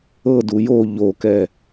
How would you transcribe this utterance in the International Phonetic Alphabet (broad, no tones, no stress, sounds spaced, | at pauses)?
ɤ d u j o ʎ o k ɛ